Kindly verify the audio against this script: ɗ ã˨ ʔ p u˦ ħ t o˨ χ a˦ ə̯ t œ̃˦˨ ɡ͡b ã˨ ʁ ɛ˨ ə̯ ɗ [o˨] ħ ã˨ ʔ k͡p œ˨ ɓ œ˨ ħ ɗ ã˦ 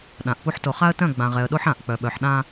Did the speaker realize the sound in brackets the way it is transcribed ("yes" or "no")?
no